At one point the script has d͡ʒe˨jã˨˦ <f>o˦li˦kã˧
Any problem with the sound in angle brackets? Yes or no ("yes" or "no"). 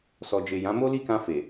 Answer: yes